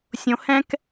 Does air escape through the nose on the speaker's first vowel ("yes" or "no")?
yes